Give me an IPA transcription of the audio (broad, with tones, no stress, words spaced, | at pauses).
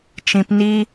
t͡ʃĩ˧p ni˧